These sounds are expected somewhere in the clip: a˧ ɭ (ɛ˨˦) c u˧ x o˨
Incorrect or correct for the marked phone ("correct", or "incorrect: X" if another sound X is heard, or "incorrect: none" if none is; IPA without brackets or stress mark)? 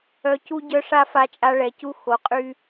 incorrect: ɛ˨